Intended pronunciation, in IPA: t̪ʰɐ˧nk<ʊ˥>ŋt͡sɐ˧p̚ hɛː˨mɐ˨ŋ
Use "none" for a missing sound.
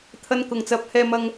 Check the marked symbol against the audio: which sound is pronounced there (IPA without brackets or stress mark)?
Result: ʊ˨˩